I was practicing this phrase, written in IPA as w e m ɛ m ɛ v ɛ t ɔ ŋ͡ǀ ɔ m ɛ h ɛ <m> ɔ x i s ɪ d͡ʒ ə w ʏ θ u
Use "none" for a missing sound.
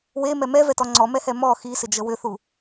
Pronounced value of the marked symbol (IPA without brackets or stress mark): m